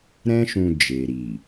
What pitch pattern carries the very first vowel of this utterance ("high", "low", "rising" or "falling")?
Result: high